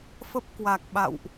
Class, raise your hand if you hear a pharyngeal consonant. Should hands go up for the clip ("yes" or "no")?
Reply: no